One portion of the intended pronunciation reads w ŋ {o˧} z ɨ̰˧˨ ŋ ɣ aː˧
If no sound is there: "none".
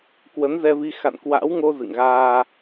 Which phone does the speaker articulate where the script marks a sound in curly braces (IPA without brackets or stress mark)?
o˧